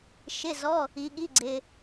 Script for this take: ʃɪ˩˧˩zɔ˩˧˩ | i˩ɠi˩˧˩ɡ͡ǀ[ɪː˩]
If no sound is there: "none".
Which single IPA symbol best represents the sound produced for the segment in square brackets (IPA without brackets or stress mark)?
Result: ɪː˩